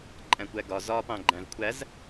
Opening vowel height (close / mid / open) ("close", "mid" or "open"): open